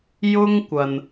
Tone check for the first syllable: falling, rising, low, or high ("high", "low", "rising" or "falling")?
high